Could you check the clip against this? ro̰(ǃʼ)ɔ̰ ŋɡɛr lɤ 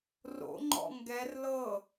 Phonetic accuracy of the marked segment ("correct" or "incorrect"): incorrect